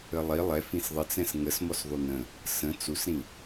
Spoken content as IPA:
ə lˠ i lˠ ɛ f ĩ s ðˤ ə t͡s ɛ̃ s ŋ ə s m ɔ s ðˤ u n ə̃ | s ə̃ t͡s u s ɾ ĩ

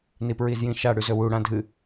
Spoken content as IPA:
n i p ɹ i z j ĩ ʃ a ɽ ʉ z ɵ w u ɽ ã dʱ ɨ

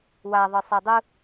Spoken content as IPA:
w a ðˤ ɯ sˤ ɛ dˤ ɯ

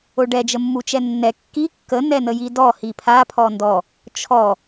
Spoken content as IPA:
o ɖ ɛ d͡ʒ ə mː u t͡ʃ ɛ nː ɛ kː i kː ə n ɛ n ə j i d ɔ h i pʰ a pʰ ɔ n d ɔ | t͡ʃʰ ɔ

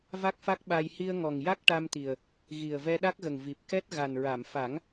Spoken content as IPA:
v a˦˥ k̚ f a˦˥ k̚ ɓ a˧ j h i˧ ə̯ ŋ ɔ˨˩ ŋ j a˦˥ k̚ ʈ a˧ m t̪ i˨˩ ə̯ | ɣ i˨˩ ə̯ v ɛ˧ ɗ a˦˥ k̚ ɣ ə˨˩ ŋ v i˨˩ p̚ k ɛ˦˥ t̚ ɣ a˨˩ n ɹ a˨˩˨ m f a˨˩˦ ŋ

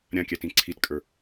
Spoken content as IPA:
ɾʲ ã kʲ æ t ĩ ǀʰ i t kʼ ə˞

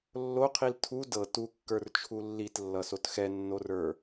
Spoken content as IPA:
lː o qʰ i l tʰ u d ɤ t u kː ə˞ r t͡ʃʰ u lː i t lː ʌ s o t x ɛ nː o r ə˞

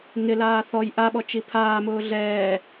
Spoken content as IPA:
ŋ ɪ l aː θ ɔ j ʔ a ɓ ɔ t͡ʃ i pʰ aː m ʊː ɮ ɛː

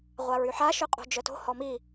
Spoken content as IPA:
ʁʷ a ɹ y ħ a ʃ ø qʼ o̤ d͡ʒ œ t o̤ h ɔ m i

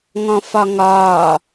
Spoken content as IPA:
ŋ ɔ̃ f ɒ ŋ ɒː

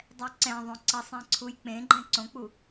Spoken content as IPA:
dˤ ɛ ǀ ɛ̃ ðˤ õ ǀ ʌ sˤ ɛ̃ ǀʰ u j k͡p ẽ ɡ͡ǃ ɛ̃ ǀ õ k͡p u

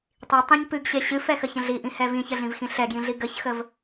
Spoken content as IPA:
tˤ i tˤ ĩ ɲ p ɨ ɡ ɕ e ɕ ɨ f ɛ x ə ç ə̃ ɮ i ʔ ĩ h ɛ v ĩ ç ə ɮ ĩ v x ĩ ɬ ɛ ɡ j ĩ ɮ i ɡ ə ç x ə v

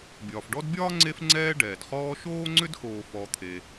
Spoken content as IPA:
bʲ ɒː˩ f ɖ ɔ˦ d bʲ ɒː˥ ŋ͡ǀ e˥ f ŋ͡ǀ ɛː˦ ɖ ɛː˩ d χ ɔː˦ ʃ oː˥ ŋ͡ǀ ʏ˥ d x oː˨ f ɔ˨ t̪ʰ e˨

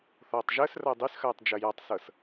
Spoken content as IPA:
θ ɔː tˤ ʒ əː s r ɐː dˤ y s x ɐː tˤ d͡ʒ ɐ j a tˤ s ɤ s

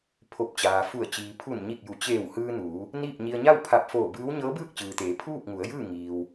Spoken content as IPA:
pʰ o˧˩ p̚ t͡ɕ aː˩ f u˧˩ ə̯ t͡ɕ iː˩ pʰ u˧˩ n ɲ i˧˩ k̚ j u˩˧ t͡ɕ eː˧˩ w h ɯː˧ n uː˩˧ | n iː˥˨ p̚ ɲ i˧ ə̯ ɲ a˥˨ w pʰ a˧˩ p̚ f oː˧˩ b ɯː˧˥ w ɲ ɤː˧˥ b ɯː˥˨ k̚ t͡ɕ ɯː˩ t̪ eː˩˧ pʰ uː˥˨ p̚ ŋ u˩˧ ə̯ j ɯː˥˨ ŋ iː˩ w

